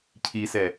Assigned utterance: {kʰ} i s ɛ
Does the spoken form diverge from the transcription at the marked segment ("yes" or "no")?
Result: yes